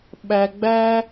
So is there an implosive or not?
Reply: yes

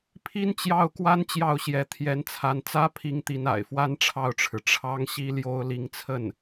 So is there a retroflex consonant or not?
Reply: yes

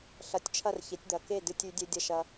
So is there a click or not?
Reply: no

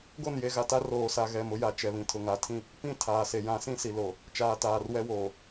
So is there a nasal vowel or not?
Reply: yes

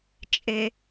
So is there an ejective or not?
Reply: yes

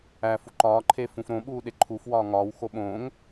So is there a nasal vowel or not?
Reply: yes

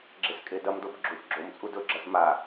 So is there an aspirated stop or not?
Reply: no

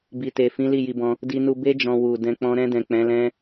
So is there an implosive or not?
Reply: no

